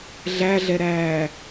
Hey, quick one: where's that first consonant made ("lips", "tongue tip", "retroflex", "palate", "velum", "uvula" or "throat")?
tongue tip